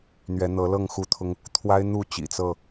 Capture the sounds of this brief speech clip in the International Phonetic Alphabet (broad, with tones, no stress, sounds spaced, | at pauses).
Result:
n̪ ɥ ɛ˨˦ n̪ ɤ˨˦ l ɤ˥˨ ŋ x u˦ t̪ʰ ʊ˦ ŋ | t̪ʰ w a˦ ɪ̯ n̪ u˥˨ t͡ɕ ḭ˨˩ t͡s ɤ˥˨